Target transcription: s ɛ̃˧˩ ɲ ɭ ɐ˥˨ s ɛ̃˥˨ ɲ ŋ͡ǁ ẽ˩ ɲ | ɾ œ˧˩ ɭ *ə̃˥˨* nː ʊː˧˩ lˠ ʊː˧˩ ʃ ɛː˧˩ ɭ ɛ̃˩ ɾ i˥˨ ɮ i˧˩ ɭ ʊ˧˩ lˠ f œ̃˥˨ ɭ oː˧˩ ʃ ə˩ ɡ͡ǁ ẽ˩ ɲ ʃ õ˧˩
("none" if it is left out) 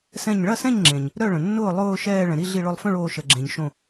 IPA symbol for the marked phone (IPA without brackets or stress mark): ə̃˩